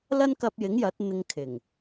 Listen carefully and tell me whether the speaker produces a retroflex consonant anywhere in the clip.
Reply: no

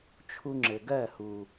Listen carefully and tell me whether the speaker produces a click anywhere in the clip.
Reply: yes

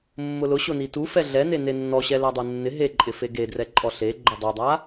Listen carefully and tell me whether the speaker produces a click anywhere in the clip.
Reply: yes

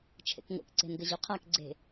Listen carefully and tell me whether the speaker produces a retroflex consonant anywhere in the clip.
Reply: no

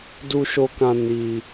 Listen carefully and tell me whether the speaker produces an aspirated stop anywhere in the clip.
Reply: no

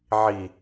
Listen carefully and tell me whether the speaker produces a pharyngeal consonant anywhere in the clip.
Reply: yes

